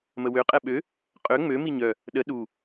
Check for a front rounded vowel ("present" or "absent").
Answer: present